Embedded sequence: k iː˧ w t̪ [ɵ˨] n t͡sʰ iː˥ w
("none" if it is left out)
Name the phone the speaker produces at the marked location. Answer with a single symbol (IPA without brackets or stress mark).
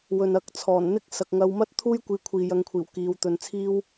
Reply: ɵ˧